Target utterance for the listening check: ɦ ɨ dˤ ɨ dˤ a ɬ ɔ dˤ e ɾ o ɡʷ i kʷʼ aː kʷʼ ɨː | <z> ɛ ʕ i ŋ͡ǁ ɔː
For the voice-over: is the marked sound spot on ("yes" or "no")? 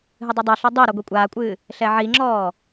no